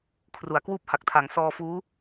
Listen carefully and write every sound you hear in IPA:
kʰru˩˦a̯kwuː˥˩p̚ha˨˩k̚tʰa˩˦ŋ sɔː˧fuː˦˥

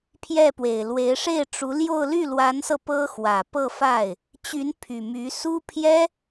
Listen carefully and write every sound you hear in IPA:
pʰjɛ˥˩pwe˨˩ɪ̯lwe˧˥ɪ̯ ʂe˥˩ɪ̯ʈ͡ʂu˧˥ljo˥˧ʊ̯ ly˥˩lwa˧˥nsɤ˧ pɤ˥xwä˨˩ pɤ˥˧fa˥˩ɪ̯ | t͡ɕy˧˥n pʰy˨˩my˧˥ su˥ pʰjɛ˥

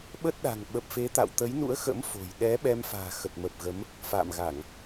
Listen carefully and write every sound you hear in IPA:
ɓə˦˥t̚ɗa̤˨˩ŋ ɓə˨˩p̚fe˨˦t̪a̰˧˨w t̪ə˨˦jnṵ˧˥ə̯xə̰˧˥m fo̤˨˩j ɗɛ˨˦ ɓɛ˧mfa̤ː˨˩ xə˨˩t̚mə˨˩p̚ ɣə˨˦m | fa̰ː˧˨mɣa˧˩˨ŋ

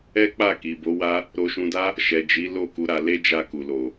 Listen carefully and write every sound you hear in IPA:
ɛ˦k͡pa˦˨ ki˨bo˨˦ wa˦ | ɾo˧ʃũ˧da˦ | ʃɛ˨d͡ʒi˨˦ lo˦˨ku˨˦ɾa˧le˦ d͡ʒa˦˨ku˨lo˨

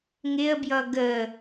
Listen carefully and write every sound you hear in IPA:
ŋɪə̯bjʌ ɡə

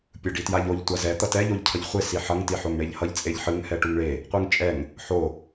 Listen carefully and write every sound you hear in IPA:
pʲɯɖitjaʎoʎ tʷazɛ t̪ʌtɛ ʎoʎcʰʌʎχʷe siħʌŋ tiħoŋɳeʎhʌʎ t͡sʼeʎħɯŋ hɛʈuŋɭe | qʷɯŋt͡ʃʼɛŋ | ħo

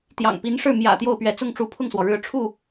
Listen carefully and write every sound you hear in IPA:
t̪jɑ̰˨˩ŋpi˧˥nʂɻ̩˥˩ mjä̰˨˩ t̪jo˥˩ʊ̯pɥɛ˧˥ t͡sʊ˥˩ŋʈ͡ʂu˧˥pʰʊ˥˩ŋswɔ˩ ɻɻ̩˧˥ʈ͡ʂʰu˥˩

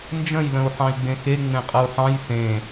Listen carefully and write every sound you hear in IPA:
nd͡ʒə̃jlə̃u̯ ħɑ̃i̯ɡ͡bẽxe ŋ͡mẽqʼəu̯ħɑ̃j sẽ

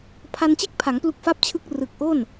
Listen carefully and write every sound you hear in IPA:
pʰa˧nt͡ɕe˥˩k̚pʰa˩˦ŋ plu˦˥k̚fa˥˩p̚t͡ɕʰɯ˥˩k̚ rɯ˨˩k̚ʔo˥˩n

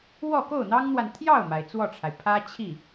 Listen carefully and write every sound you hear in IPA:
wɔ˥˧ko˥˩ʊ̯n̪ɑ˥ŋn̪wa˨n t̪ʰjɑ˥˩ʊ̯ma˩ɪ̯ t͡swɔ˥˩ʈ͡ʂʰa˩ɪ̯ pʰä˥t͡ɕʰi˥˩

